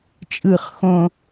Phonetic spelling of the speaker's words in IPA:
t͡ʃʼɯχ xõ

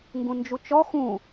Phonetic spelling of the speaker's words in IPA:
ŋɡũnd͡ʒut͡ʃɔ xũ

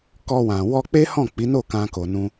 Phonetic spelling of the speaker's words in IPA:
kɔ˧wã˨ wɔ˧k͡pe˦hɔ̃˦˨ k͡pi˨˦no˦˨ kã˧ko˨nũ˧

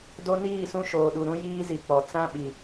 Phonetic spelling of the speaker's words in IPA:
do˦niː˦˨sũ˦ ʃoː˨ɗu˨ ɾũ˦ jiː˦zi˨ k͡pɔ˨ t͡sã˦ɓi˨

